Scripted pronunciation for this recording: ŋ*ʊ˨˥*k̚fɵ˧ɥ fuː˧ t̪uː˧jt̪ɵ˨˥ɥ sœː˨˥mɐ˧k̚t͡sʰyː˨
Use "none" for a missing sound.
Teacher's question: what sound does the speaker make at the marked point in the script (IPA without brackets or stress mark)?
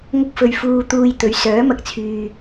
ʊ˥